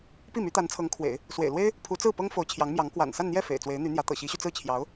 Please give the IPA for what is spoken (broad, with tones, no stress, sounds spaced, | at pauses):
p i˥˩ m y˧˥ t̪ a˧˥ n t͡sʰ ɤ˧˥ ŋ kʰ w ḛ˨˩˦ ɪ̯ | s w ḛ˨˩ ɪ̯ l w e˥ ɪ̯ | pʰ u˧˥ t͡s ɹ̩˥˩ p ɤ˥ ŋ f o˧˥ ʊ̯ t͡ɕʰ j ɑ˧˥ ŋ m j ɑ˧˥ ŋ k w a̰˨˩ n s a˥˧ n n̪ j ɛ˥˩ f ḛ˨˩ ɪ̯ t͡s w e˧˥ ɪ̯ n̪ y˧˥ n̪ j ä˧˥ t̪ ɤ̰˨˩ ɕ i˧˥ ɕ y˧ t͡s ɹ̩˥˩ t͡ɕʰ j ɑ˧˥ ʊ̯